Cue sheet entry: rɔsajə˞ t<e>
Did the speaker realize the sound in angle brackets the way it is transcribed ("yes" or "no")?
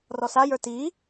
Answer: no